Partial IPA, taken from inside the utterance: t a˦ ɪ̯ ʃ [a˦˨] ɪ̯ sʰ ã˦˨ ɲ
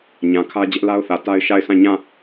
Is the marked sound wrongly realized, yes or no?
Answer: no